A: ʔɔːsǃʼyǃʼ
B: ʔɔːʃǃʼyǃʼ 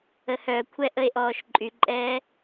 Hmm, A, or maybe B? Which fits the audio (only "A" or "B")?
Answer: B